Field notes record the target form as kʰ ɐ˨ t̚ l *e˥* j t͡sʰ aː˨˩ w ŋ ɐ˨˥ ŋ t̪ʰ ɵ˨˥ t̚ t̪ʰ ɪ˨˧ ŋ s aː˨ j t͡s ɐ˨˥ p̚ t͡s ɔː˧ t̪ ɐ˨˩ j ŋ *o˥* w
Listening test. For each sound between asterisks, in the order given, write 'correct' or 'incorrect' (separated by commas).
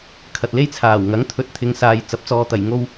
correct, correct